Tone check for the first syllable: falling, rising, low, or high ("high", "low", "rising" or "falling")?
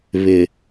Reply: low